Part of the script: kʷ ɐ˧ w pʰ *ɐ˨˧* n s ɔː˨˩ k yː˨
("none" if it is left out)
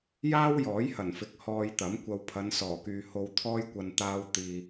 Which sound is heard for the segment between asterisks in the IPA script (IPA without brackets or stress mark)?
ɐ˨˧